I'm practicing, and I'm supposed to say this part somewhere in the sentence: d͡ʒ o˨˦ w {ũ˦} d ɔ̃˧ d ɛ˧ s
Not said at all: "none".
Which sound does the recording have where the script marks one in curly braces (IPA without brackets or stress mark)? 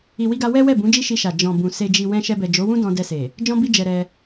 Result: ũ˦